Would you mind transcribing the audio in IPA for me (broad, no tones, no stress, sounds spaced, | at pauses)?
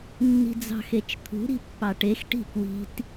nː i̤ d͡z ɑ̤ x e t͡ʃ t̪ʰ ṳ ɾ i̤ pː ɑ ʈ e x ʈ i̤ k w i̤ t